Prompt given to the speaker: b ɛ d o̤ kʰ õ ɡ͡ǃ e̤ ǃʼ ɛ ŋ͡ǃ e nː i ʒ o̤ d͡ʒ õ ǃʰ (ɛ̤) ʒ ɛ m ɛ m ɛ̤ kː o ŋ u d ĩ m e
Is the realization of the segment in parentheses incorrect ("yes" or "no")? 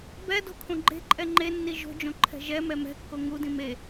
no